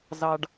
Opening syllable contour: high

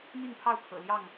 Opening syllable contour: falling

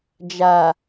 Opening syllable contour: low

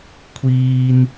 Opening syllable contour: high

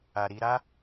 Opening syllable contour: low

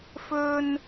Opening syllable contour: high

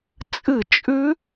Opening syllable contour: falling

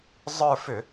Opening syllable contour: falling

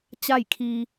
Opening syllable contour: falling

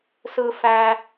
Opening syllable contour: high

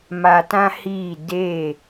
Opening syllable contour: low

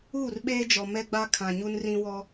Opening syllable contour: falling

